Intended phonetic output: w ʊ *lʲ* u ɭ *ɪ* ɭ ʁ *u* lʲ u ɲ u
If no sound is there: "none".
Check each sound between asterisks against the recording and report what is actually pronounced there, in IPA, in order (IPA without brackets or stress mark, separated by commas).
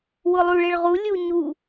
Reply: lˠ, ɪ, u